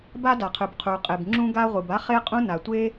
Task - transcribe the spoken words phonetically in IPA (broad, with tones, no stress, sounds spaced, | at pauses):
b a˥ d a˩ qʰ ɨ˩ b qʰ u˩ qʼ e˩ b ŋ͡ǁ ũ˥ ɡ a˥ ʁʷ ɨ˩ b a˥ χ e˥ qʼ ũ˥ n a˩ tʷ e˥